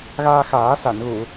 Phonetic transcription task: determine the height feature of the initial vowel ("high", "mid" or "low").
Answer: low